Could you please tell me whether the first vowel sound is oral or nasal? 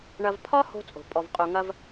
oral